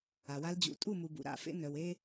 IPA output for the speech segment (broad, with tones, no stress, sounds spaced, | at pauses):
a˨ w a˧ l d͡ʑ ṵ˨˦ tʼ u˦˨ m u˨ b ṵ˨ ɾ a̰˦˨ f ḛ˦ n œ˧ w e˦